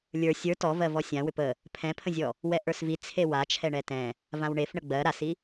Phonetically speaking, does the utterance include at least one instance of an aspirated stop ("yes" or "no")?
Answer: yes